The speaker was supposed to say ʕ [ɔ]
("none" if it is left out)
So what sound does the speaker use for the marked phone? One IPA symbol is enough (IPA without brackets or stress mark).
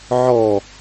ɔ